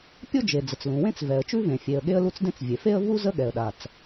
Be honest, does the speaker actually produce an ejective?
no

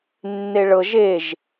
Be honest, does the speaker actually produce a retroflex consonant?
yes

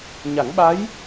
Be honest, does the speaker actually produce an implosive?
yes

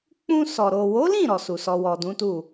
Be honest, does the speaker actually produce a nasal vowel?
yes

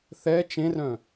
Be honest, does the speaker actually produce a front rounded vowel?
yes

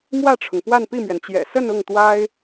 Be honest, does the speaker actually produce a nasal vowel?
no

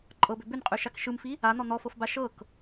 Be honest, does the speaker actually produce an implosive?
no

